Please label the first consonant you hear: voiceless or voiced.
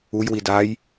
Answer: voiced